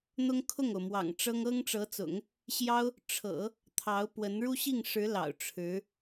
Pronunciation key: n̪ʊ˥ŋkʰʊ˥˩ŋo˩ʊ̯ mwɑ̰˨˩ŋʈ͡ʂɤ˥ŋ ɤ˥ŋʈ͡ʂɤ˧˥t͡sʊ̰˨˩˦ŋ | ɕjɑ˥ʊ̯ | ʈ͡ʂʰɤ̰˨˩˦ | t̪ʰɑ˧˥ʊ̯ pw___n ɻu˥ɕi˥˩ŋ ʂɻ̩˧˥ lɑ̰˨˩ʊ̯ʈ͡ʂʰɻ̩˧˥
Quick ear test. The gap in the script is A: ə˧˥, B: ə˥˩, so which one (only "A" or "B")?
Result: A